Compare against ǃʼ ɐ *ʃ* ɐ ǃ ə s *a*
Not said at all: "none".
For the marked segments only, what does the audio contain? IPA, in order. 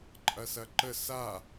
s, a

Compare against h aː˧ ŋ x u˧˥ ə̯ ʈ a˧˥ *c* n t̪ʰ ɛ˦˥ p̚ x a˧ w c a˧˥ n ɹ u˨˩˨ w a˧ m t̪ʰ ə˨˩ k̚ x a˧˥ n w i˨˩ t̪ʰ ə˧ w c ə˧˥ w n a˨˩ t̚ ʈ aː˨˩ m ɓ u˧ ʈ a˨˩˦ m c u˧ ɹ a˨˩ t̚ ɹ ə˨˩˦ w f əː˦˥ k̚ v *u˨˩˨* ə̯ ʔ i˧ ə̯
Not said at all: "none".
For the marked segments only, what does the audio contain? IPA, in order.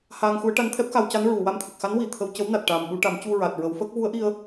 none, u˧˥

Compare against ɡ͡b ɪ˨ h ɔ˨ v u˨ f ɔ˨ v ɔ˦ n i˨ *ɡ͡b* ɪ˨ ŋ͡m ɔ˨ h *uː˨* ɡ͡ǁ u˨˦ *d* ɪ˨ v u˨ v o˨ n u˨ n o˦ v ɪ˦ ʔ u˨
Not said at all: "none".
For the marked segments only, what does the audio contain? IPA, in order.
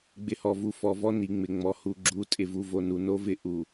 ŋ͡m, u˨, tʼ

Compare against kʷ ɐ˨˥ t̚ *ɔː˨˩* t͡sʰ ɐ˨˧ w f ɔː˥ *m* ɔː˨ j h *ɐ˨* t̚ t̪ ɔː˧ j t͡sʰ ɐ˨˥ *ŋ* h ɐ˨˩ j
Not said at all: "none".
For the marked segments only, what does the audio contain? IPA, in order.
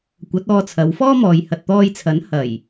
ɔː˧, m, ɐ˨, n

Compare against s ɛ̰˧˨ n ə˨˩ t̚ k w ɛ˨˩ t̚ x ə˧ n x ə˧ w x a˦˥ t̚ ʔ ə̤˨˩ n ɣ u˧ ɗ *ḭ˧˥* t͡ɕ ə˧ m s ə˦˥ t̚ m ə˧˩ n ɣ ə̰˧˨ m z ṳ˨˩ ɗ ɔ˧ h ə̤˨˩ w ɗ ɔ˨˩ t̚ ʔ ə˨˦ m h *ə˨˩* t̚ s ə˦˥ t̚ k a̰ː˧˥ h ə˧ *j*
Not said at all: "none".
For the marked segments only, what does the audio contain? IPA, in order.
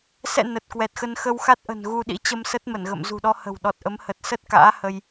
ḭ˧˥, ə˨˩, j

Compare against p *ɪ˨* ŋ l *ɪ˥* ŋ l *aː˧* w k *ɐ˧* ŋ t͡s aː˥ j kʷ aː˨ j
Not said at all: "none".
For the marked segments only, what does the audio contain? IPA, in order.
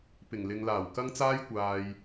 ɪ˨˩, ɪ˨, aː˨˩, ɐ˥

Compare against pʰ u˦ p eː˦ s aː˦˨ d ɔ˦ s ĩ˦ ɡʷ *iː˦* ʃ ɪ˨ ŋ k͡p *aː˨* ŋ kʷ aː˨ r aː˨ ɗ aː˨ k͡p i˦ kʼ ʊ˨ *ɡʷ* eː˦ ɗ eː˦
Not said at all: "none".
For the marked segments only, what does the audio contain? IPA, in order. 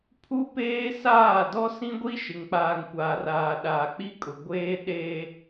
i˦, aː˨, ɡʷ

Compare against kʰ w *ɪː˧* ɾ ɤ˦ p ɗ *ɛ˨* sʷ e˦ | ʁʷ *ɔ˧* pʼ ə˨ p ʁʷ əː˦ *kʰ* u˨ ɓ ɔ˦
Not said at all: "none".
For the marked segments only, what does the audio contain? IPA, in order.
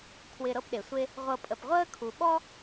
ɪː˧, e˨, ɤ˧, kʰ

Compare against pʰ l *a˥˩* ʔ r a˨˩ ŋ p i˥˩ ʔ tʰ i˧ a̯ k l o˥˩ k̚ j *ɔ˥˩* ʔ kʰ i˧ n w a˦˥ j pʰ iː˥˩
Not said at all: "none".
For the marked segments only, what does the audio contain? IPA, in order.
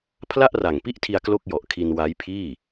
a˥˩, ɔ˨˩

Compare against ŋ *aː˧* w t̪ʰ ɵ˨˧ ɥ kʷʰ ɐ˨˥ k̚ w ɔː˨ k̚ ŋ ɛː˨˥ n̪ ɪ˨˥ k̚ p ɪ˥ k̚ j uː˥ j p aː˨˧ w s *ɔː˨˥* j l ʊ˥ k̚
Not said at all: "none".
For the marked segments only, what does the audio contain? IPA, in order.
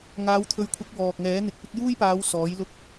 aː˨˧, ɔː˨˥

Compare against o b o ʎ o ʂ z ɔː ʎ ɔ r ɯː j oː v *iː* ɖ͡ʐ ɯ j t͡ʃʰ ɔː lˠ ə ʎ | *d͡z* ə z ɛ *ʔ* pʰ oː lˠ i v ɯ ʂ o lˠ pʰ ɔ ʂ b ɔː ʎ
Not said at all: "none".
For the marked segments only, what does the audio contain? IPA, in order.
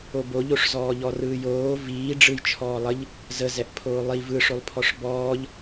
iː, z, ʔ

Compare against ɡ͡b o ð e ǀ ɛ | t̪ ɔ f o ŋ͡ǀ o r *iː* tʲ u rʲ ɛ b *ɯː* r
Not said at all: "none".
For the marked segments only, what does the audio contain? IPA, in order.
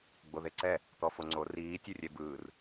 iː, ɯː

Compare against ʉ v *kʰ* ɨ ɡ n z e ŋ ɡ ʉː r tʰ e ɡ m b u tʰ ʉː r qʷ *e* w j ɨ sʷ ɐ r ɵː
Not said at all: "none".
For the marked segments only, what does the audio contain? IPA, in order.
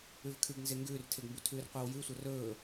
kʰ, e

